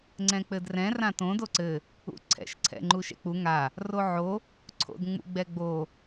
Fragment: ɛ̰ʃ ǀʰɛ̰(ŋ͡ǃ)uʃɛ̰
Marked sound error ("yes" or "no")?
no